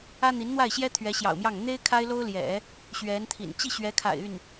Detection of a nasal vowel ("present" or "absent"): absent